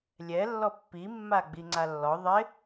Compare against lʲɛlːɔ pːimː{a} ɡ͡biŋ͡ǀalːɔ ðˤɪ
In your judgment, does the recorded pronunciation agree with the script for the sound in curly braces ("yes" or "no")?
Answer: yes